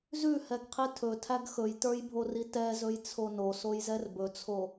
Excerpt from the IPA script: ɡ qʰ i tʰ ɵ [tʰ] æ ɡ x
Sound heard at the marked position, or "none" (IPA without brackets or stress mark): tʰ